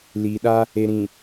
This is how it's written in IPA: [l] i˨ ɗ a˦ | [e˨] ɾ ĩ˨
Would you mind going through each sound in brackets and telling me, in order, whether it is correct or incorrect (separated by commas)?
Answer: correct, correct